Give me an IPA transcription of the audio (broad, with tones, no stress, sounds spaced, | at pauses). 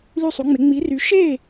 l y˦˨ sˤ u˨˦ ŋ͡m e˨˦ ŋ͡m i˨˦ r y˨˦ ʃ e˦˨